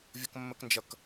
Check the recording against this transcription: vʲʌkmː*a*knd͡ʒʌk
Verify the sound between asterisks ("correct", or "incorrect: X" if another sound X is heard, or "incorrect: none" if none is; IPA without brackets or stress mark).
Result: incorrect: ə